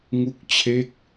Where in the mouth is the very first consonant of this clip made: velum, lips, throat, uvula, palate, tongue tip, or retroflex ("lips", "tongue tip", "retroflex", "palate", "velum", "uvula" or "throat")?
velum